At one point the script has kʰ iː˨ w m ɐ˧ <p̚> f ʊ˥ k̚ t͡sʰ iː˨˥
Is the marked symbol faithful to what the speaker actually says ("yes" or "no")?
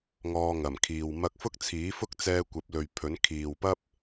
no